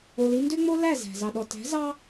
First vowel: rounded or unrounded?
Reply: rounded